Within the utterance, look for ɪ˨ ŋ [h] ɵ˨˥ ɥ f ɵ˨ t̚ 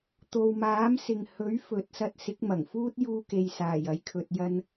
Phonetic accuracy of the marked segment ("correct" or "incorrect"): correct